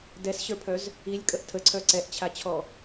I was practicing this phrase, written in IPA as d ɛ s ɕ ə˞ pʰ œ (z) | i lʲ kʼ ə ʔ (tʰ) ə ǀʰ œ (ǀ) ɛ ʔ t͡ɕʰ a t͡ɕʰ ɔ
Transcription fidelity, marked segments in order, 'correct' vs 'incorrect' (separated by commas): correct, correct, correct